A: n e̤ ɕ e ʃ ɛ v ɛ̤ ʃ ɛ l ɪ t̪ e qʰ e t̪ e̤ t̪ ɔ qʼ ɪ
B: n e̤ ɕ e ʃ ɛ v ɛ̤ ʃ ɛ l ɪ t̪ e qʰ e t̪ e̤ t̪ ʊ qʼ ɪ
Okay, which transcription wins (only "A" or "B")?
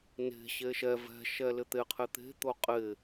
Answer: B